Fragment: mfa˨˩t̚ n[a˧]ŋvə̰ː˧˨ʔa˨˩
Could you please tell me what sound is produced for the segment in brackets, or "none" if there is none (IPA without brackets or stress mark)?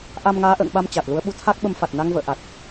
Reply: a˧